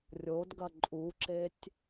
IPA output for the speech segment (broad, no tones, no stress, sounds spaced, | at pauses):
rʲ o d ɡ ɐ ǃʼ u ǁ e tʲ